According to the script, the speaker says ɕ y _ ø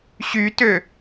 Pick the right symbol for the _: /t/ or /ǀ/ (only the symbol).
t